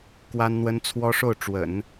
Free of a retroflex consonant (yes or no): no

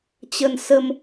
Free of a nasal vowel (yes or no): yes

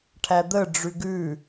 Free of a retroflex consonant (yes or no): no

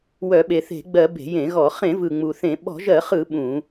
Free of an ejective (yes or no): yes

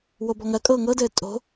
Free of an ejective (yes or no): no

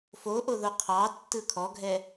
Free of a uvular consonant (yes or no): no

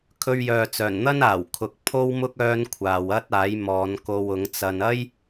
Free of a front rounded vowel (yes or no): no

